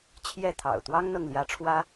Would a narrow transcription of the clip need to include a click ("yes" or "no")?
no